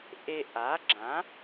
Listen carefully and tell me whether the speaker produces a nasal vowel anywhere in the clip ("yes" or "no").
yes